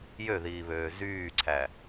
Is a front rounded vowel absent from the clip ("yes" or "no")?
no